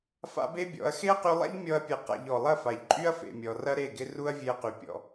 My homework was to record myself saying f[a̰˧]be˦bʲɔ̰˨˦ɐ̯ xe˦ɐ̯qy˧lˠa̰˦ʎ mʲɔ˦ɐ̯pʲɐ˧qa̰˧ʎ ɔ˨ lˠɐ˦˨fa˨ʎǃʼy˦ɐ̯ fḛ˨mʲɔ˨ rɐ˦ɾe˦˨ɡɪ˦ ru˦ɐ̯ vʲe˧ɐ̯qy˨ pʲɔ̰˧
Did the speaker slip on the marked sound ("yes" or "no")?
yes